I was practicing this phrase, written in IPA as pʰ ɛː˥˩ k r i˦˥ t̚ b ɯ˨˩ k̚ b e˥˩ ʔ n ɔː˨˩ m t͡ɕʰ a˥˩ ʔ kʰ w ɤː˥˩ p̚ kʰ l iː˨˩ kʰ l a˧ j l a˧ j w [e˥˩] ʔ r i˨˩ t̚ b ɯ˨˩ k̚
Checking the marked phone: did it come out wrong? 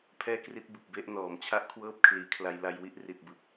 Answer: yes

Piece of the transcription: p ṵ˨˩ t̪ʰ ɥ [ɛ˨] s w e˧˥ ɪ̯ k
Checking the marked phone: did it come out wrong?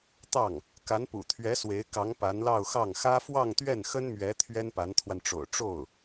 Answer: yes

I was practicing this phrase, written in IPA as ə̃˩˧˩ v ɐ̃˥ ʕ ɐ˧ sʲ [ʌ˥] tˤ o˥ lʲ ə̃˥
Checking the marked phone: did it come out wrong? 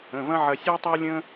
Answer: yes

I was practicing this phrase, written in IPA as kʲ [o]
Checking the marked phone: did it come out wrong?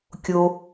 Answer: no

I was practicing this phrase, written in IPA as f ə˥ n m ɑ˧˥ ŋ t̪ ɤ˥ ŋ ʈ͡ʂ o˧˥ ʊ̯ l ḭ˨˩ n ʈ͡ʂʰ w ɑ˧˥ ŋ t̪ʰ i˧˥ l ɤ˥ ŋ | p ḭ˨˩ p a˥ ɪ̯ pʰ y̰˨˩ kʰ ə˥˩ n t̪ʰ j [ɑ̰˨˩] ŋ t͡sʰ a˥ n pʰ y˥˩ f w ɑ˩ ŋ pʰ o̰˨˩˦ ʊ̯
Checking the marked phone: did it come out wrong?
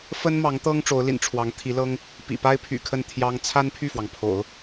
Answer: yes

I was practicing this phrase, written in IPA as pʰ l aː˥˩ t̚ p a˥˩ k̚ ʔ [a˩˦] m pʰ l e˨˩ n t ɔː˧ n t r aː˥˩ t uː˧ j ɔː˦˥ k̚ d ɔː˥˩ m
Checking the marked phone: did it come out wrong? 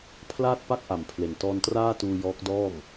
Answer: no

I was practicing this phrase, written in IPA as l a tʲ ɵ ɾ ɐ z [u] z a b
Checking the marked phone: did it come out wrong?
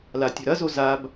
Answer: yes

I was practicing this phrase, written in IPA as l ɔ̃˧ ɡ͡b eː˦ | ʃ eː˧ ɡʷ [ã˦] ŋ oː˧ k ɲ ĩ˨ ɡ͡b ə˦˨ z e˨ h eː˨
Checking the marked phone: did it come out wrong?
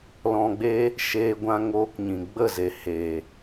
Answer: yes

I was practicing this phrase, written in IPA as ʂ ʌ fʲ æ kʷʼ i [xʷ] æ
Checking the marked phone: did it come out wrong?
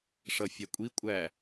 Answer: yes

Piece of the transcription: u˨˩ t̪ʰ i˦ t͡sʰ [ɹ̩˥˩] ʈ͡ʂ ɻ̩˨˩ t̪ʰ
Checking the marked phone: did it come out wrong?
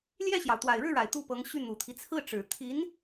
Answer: no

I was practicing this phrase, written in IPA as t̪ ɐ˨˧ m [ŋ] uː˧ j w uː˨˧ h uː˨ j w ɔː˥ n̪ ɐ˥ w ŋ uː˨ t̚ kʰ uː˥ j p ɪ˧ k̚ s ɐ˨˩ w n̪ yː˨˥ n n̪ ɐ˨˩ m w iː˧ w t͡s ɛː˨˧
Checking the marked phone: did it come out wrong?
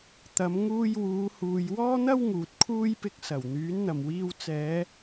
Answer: no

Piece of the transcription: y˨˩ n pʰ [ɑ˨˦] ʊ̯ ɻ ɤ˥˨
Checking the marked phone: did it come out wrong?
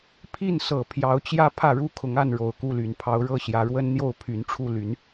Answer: no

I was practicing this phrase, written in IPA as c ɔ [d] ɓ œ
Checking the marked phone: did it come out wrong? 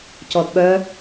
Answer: no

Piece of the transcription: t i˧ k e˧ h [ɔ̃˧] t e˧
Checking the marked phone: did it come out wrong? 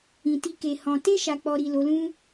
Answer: no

